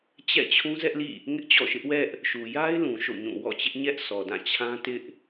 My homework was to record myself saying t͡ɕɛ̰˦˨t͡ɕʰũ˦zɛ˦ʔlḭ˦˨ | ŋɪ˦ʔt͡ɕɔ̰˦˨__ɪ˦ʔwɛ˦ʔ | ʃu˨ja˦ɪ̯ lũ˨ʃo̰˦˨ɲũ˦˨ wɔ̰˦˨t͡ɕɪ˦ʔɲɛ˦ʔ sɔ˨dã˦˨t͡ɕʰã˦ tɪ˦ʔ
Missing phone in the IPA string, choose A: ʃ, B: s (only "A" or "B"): A